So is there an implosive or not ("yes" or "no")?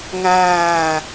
no